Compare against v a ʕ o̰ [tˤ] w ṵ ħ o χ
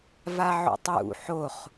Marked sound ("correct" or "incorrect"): correct